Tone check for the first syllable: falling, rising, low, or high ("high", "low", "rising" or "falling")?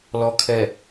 low